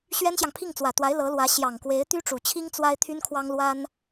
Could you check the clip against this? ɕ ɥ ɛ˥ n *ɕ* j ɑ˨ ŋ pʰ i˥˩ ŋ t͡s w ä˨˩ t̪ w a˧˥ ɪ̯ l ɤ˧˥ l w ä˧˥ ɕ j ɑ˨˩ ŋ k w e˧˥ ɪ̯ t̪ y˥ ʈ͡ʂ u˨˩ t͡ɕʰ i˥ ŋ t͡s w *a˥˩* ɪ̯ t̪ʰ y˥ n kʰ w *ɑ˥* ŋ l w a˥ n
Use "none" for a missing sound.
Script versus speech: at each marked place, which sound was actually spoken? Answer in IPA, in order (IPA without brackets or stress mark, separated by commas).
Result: ɕ, a˥, ɑ˥